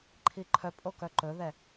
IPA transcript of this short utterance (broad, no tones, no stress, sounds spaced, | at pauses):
ǃʰ i ǃʰ œ pʼ o k œ ǃ ɵ ð ɛ